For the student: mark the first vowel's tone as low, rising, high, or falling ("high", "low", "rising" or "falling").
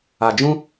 low